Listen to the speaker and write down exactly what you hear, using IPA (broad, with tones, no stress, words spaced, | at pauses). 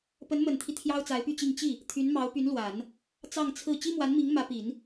pə˧˥nmə˨˩nt̪ʰi˦ t̪ʰjɑ˥ʊ̯t͡sa˧˥ɪ̯py˥˧t͡ɕi˥˧ŋ t͡ɕi˥˩ | t̪ʰy˧˥nmɑ˧˥ʊ̯py˧˥nlwa˨˩˦n | t͡sɑ˥˧ŋt͡sʰɹ̩˥˩ t͡ɕi˥mwa˧˥nmi˧˥ŋ mä˧˥pi˨˩˦n